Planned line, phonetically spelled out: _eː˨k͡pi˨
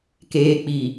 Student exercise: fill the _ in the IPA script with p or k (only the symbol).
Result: k